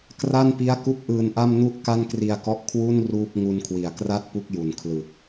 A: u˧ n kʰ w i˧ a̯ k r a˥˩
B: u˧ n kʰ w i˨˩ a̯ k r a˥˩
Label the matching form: B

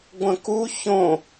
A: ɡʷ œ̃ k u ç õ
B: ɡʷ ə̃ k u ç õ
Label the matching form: B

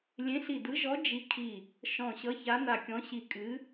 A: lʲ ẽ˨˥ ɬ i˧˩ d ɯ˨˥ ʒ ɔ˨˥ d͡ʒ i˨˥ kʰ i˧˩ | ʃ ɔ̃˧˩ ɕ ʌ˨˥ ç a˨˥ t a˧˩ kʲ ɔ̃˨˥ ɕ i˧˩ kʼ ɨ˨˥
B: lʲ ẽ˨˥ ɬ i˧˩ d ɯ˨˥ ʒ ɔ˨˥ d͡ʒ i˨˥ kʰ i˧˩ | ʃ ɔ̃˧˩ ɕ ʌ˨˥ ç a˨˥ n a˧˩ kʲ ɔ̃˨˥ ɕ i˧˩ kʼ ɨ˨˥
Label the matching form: B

